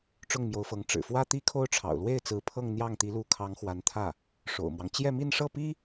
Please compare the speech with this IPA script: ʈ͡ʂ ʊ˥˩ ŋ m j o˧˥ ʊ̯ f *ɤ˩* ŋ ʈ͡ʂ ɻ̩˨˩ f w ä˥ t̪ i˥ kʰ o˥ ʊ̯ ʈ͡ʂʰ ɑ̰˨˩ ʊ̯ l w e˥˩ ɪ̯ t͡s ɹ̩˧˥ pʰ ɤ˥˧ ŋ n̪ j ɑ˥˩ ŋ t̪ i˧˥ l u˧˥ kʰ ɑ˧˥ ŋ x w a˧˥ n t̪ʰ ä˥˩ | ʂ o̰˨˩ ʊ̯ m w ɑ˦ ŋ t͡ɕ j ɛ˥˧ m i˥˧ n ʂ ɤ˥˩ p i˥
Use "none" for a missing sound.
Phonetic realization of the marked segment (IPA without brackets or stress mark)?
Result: ɤ˧˥